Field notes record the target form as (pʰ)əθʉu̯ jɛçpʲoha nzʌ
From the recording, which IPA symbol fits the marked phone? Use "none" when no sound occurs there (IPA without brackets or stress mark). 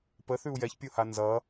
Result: p